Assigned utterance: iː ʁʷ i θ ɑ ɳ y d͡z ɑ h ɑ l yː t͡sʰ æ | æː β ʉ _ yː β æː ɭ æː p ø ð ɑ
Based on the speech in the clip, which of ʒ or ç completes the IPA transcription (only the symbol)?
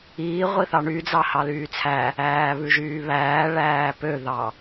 ʒ